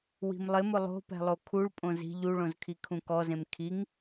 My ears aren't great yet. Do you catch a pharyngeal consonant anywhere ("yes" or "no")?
no